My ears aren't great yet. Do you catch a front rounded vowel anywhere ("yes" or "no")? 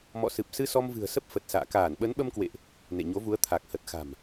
no